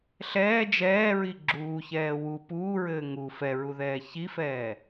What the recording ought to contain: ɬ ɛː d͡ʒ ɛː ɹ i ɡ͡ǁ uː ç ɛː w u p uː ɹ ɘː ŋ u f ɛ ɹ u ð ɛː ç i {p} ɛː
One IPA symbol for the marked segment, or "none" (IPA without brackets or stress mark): f